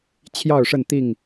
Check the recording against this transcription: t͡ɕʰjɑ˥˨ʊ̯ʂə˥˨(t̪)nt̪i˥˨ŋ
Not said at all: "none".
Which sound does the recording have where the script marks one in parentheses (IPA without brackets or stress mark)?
none